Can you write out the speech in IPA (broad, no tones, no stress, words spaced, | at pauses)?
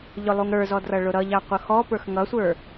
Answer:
ʎʊlˠuŋɾə˞zɔ drʌɭʊɾʌʎɑ qʷʌxɔpə˞x ŋʌsʷə˞